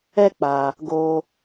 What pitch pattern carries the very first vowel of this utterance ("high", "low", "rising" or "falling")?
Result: high